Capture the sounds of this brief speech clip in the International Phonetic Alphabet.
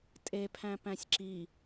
tʼepʰæ̃ pæ̃sʲǁi

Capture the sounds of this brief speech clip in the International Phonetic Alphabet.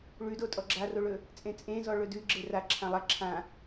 ɭʉdotʼɔ ɡ͡ǁaroɭɵ | t͡sʼẽt͡sʼẽzɔ ɭɵdʉ ɡ͡ǁera ǁʰãlˠa ǁʰã

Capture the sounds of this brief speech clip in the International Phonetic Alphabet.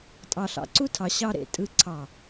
tʼɑ˨ɬɑ̰˨ǀu˦ tʰɑ˨ɕɑ˦ɾḛ˨ tʼɯ˦ǀʰɑ˦˨

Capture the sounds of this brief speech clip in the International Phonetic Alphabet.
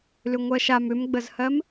lʏŋʷɜʃam ʏmɡ͡bəzhɜm

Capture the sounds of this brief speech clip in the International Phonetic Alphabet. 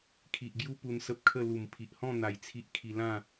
kʰi˨ʔɡju˦ pu˧nsə˦p̚kʰə˥˧ lu˨˩mpʰi˨ʔhɔ̃˥˧ n̪a˨˩j t͡sʰi˦ʔkʰi˧ lã˥˧

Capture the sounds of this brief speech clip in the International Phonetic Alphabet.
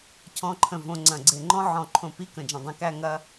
cʰɔ̃˧˥˧ǃʰə̃˧˩ võ˧ŋ͡ǀɐ̃˧˩ɡ͡ǀe˧˩ ŋ͡ǃɔ̃˥ʕɔ̃˧˩ ǃʰõ˧˩pi˧˥˧ kə̃˧˩d͡ʒɐ̃˧˩dˤẽ˧˥kæ˥ ŋɐ˧

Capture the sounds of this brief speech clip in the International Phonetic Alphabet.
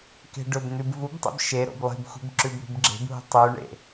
ke̤ɖɵbn̪ʉb vubtˤḛb ʃe ɾo̰blˠi̤bxʷe̤b ǁʉbɾṳbɡ͡ǁe̤bɦṳ tˤʉɳḛ

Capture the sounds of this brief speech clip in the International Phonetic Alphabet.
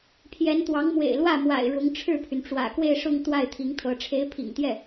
pʰjɛ˧˥nt̪wɑ˧˥ŋ mwḛ˨˩ɪ̯lwä˥˩ mwa̰˨˩ɪ̯ɻʊ˧˥ŋʈ͡ʂʰɻ̩˥˩pʰy˩n ʈ͡ʂwä̰˨˩kwe˥˧ɪ̯ʂʊ˥˧ŋ t̪wa˥˩ɪ̯t̪ʰi˧˥ŋt̪ʰɤ˧˥ ʈ͡ʂʰe˧˥ɪ̯pʰḭ˨˩ŋt̪jɛ˥˩

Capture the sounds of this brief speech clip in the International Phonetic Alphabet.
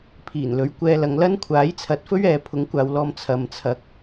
pʰiː˨˩nlɵ˨˥ɥkʷɛː˧ lɐ˨˧ŋlɐ˥nkʷʰaː˨˥j t͡sʰɐ˨˥t̚fɵ˥ɥɛː˨ pʰʊ˨˥ŋkʷaː˨w lɔː˧m t͡sʰɐ˨mt͡sʰɐ˨˥k̚

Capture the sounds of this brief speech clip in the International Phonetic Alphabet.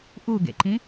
ʔuɡḛǃĩ

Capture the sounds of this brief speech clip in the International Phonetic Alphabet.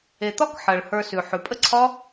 e˨t̪ɒ˦k ħɜ˨ɭ hə˞˧sʉ˨ ħʉ˨pʼə˦ǀʰɒ˦

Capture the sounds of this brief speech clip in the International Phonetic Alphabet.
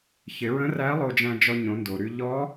çɪ˩˧ɹə̃˧˥ræ˧˥ lˠo˧d͡ʒæ̃˧d͡ʒɔ˧ ɲõ˩˧ndo˩ɾy˧ ʎɔ˧˥

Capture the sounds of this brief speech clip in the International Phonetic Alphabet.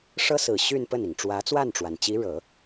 ʂɤ˥sɹ̩˨˩ ɕy˥˧n pə˥˩ni˩ŋ ʈ͡ʂwä˧˥t͡swa˥˩nʈ͡ʂwa˩nt͡ɕi˧˥ ɻɤ˨˩˦

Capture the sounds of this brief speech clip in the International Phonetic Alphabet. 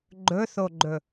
ɡ͡ǃɵθoɡ͡ǃɵ

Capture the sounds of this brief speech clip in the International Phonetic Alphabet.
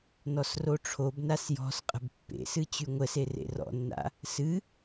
nɔsroʈ͡ʂʰobnas jɔ̤s qʼə̤bpːḛsɨ t͡ɕyŋʷəse rḛrɔ̰nːa̰ | sɨ

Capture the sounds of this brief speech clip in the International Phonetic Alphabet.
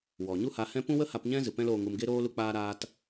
wɔ˨ ɲu˦ha˧hɛ̃˦ pũ˦wə˦ha˧pɲɛ̃˦ zɨ˨pɛ̃˦loː˧ŋu˧m ɡe˦ɾoː˦ lu˦k͡paː˦ ɾaː˦t

